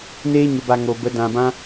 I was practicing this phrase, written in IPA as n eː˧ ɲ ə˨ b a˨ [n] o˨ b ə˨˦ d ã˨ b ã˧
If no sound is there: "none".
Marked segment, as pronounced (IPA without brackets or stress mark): ŋ